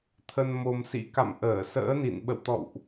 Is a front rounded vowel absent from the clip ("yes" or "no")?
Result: yes